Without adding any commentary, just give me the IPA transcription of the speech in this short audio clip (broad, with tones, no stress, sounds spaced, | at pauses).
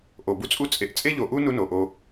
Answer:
ʔ o˨ b u˦ t͡sʼ u˦ t͡sʼ e˨˦ ʔ t͡sʼ e˦ ʎ o˨ ʔ u˦ n u˦ n o˨ ʔ o˧